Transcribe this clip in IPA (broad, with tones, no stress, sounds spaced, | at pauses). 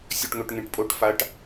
sʲ ɵ˧ ʈ ŋ ɵ˧ ʈ ŋ ẽ˧ ʈ pʼ o˧˥ ʈ f a˧˥ ʈ